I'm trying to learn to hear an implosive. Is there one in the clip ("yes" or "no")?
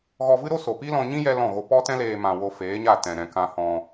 no